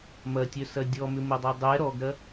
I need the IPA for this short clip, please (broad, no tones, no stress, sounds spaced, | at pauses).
m ɐ tʲ œ s ɐ dʲ ɔ m ʏ m ʊ dˤ œ dˤ ɛ ɾ ɔ ɡ ɾ ɐ